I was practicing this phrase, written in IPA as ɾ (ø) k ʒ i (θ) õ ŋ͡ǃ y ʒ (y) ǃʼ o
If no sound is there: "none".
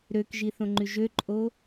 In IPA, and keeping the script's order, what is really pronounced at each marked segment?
ø, θ, ø

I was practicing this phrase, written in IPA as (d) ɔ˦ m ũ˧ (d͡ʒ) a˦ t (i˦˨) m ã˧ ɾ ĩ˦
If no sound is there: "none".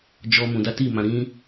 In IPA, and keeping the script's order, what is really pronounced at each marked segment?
d͡ʒ, d, i˦˨

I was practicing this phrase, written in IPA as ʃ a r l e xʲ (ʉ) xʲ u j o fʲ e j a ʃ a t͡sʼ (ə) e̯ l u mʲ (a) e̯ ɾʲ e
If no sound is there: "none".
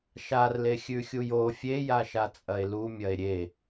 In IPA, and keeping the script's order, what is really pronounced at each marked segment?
ʉ, ɐ, ɐ

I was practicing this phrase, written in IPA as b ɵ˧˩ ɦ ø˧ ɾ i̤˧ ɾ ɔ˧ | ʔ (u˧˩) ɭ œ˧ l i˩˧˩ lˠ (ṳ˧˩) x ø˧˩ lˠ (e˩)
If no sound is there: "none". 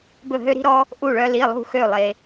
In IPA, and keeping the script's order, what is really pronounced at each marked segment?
u˧˩, ṳ˧˩, e˩

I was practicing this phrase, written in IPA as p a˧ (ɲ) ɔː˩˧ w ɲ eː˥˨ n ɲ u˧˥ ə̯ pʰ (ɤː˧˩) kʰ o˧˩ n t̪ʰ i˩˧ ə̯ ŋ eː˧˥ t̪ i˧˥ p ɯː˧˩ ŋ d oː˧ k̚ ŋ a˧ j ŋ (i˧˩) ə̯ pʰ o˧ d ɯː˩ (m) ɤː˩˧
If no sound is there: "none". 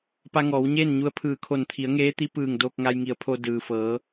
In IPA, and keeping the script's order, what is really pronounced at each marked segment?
ŋ, ɯː˧˩, i˩˧, f

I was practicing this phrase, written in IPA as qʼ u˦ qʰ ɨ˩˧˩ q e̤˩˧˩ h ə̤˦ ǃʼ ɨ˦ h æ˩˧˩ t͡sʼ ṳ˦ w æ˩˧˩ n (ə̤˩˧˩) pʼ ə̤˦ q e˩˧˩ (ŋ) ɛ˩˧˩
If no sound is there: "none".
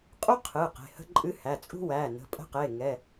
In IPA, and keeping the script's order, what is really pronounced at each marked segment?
ə̤˩˧˩, ŋ

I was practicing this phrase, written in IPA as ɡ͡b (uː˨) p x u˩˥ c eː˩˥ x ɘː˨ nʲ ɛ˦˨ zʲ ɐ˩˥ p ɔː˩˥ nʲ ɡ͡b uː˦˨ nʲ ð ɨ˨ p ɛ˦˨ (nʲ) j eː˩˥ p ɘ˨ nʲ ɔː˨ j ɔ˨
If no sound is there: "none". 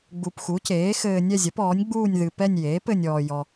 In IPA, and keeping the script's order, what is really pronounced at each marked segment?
u˨, nʲ

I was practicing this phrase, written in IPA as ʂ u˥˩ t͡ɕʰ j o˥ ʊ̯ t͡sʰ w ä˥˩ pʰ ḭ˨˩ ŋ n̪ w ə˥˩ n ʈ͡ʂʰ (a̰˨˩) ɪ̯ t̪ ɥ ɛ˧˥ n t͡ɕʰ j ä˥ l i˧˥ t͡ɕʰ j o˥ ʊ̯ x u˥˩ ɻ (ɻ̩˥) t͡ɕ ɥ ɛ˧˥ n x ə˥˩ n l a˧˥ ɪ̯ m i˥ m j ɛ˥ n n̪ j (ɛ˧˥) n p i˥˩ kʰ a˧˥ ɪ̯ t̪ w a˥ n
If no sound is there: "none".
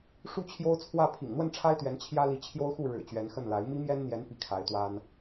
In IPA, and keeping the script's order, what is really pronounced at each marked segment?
a˥, ɻ̩˨˩, ɛ˧˥

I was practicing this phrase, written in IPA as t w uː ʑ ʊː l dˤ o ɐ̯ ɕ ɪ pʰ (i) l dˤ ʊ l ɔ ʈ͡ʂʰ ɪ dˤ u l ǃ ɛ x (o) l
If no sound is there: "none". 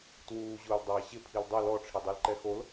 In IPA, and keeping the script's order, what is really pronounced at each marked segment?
i, o

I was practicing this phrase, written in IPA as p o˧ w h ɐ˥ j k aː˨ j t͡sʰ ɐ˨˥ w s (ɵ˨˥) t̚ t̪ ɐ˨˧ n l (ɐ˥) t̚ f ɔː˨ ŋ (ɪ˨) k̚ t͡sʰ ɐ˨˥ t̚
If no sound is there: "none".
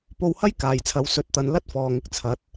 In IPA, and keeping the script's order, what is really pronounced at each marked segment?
ɵ˨˥, ɐ˥, ɪ˧

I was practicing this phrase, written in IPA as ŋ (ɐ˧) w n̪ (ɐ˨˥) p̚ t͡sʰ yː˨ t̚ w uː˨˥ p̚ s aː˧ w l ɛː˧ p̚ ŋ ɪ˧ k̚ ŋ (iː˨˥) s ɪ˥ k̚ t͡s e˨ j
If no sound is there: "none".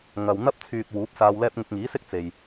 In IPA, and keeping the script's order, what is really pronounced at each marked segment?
ɐ˨, ɐ˥, iː˨˥

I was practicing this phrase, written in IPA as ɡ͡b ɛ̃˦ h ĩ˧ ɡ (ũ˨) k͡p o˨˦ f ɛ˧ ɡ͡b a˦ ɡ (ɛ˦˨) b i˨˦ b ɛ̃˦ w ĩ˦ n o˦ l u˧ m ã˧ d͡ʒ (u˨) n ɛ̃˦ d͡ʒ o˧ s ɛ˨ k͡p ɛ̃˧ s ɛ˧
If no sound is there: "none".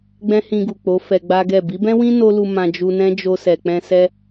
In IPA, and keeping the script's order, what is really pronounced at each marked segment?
u˨, ɛ˦˨, u˧

